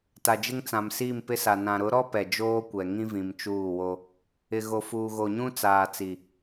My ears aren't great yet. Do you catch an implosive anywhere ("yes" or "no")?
no